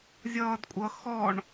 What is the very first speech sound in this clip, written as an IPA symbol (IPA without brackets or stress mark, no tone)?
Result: zʲ